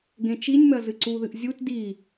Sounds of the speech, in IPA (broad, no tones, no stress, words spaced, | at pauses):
ɡẽt͡ʃinʲmɐ zɨǀuðɨʔ zʲut di